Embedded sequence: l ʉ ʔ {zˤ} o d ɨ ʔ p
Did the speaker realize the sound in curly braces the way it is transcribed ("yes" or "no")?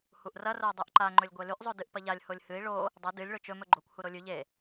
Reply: yes